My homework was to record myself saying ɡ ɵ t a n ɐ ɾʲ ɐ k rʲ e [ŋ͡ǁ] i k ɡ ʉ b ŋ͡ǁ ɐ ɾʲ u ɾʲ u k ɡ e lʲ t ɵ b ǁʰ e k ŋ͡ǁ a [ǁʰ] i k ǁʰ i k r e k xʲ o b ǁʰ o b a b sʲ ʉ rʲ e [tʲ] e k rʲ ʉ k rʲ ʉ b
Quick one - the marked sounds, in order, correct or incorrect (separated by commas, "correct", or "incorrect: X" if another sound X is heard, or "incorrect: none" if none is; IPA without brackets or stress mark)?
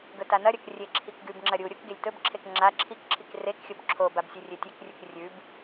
incorrect: ǁʰ, correct, correct